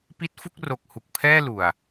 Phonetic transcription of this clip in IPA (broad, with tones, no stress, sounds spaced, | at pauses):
p i˦˥ t̚ f u˥˩ k̚ r o˨˩ k̚ h u˨˩ k̚ pʰ ɛː˥˩ l u˨˩ a̯